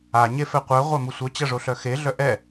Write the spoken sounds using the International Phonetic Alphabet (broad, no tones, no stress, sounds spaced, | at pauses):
a ɲ e f ɛ qʷ œ ʁʷ a m u sʷ œ t͡ɕ ɐ ʐ o ɬ œ x e ɮ œ ʔ ɛ